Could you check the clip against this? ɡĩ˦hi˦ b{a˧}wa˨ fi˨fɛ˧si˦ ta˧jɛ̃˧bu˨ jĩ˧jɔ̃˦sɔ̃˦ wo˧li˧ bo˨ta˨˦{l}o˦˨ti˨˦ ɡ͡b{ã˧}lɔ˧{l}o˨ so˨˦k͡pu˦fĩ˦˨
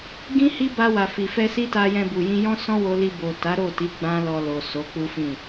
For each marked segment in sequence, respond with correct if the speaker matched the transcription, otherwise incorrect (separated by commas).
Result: correct, incorrect, incorrect, correct